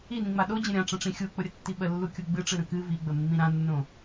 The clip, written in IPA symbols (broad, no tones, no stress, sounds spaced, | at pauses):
i n ĩ ŋ͡m a ɗ o d͡ʑ ə̃ ɾʲ ã ʈ͡ʂ ə̃ ʈ͡ʂ ĩ xʲ u k͡p ʊ ɾʲ ə tː i ɓ ə lː u kʲ u ɡ͡b ɨ ʈ͡ʂ ɨ ɾ ə̃ k ɨ v i ɡ͡b ə mː ĩ ɾ ã nː õ